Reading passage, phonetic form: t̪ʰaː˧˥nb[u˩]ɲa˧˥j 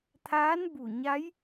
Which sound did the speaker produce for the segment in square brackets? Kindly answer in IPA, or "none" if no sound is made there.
u˧˩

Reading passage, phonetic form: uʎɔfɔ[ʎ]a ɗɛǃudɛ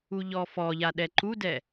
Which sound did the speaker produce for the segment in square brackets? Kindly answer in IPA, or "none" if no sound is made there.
ʎ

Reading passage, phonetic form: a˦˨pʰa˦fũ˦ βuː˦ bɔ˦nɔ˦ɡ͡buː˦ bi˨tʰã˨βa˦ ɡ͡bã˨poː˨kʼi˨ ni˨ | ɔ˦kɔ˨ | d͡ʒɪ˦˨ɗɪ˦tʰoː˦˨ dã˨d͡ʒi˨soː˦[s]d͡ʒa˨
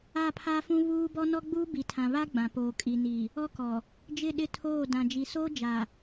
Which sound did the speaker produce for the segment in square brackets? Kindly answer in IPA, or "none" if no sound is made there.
none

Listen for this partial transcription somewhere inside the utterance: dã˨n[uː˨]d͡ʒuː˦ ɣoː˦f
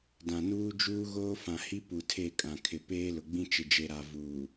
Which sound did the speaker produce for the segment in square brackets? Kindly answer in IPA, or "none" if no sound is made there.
uː˦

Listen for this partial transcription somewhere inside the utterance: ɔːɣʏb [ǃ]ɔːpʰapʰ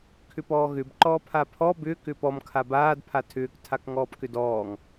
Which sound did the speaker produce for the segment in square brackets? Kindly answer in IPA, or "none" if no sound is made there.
ǃ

